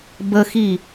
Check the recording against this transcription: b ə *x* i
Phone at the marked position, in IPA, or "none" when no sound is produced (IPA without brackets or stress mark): x